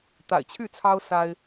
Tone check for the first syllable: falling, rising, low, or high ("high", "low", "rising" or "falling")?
low